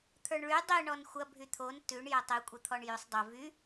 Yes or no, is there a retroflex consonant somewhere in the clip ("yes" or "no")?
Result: yes